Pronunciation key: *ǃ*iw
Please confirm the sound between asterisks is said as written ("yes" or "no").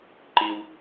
yes